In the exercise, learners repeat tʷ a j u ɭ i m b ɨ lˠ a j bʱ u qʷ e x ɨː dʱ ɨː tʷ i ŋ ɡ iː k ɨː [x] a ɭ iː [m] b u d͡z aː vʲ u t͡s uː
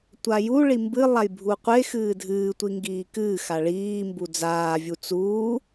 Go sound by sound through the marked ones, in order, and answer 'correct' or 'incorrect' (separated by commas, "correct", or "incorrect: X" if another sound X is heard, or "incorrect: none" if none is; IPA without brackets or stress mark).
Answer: correct, correct